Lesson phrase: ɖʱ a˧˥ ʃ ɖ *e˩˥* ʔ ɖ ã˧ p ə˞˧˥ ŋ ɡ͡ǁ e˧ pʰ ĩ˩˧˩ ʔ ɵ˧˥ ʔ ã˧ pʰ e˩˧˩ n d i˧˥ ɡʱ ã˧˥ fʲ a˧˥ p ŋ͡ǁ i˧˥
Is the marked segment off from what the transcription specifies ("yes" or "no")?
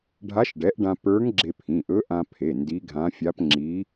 yes